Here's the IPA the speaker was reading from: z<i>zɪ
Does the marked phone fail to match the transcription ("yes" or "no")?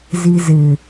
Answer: no